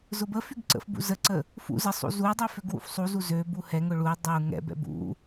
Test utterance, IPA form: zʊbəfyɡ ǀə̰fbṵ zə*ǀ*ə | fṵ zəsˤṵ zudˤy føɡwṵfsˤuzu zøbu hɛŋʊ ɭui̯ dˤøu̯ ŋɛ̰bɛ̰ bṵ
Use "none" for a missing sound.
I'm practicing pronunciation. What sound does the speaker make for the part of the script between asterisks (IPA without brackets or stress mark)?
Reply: ǀ